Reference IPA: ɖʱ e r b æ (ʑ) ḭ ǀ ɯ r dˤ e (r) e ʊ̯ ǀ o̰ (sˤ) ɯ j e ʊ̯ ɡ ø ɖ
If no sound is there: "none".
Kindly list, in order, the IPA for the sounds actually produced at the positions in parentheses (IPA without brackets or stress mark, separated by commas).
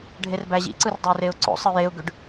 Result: ʑ, r, sˤ